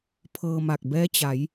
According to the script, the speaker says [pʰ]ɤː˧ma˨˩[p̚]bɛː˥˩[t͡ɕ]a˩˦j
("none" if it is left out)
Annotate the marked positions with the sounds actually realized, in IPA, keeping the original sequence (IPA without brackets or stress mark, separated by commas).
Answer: pʰ, k̚, t͡ɕ